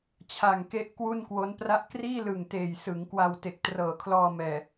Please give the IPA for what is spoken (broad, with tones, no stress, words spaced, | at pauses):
t͡ɕʰa˨˩ŋke˦˥ʔ kwu˥˩nkwo˦˥npra˥˩ʔ kriː˥˩lɯ˨˩ŋ teː˨˩jsɯ˩˦ŋ kwa˧wte˨˩k̚trɤː˨˩kʰlɔː˧ mɛː˨˩